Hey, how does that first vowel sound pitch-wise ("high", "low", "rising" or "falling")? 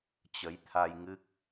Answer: rising